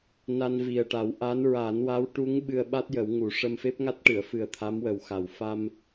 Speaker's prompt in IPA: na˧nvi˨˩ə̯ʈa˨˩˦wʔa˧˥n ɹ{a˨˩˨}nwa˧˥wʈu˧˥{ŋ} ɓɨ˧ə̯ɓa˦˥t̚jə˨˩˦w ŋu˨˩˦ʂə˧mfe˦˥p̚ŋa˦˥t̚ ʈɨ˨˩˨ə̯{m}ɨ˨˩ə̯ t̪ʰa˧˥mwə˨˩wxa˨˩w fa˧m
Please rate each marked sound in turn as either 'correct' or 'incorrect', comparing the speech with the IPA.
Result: incorrect, correct, incorrect

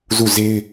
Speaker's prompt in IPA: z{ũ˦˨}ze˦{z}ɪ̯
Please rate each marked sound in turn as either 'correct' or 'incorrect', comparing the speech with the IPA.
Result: incorrect, incorrect

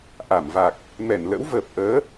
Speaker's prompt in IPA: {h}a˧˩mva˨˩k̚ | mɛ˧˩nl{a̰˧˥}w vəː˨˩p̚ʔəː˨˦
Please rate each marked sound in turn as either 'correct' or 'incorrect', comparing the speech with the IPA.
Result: incorrect, incorrect

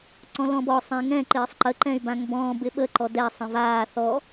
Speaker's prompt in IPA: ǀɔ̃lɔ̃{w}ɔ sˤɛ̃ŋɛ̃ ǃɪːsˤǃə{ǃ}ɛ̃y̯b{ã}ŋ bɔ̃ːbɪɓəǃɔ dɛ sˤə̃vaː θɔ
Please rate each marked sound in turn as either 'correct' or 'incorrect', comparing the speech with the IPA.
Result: incorrect, correct, correct

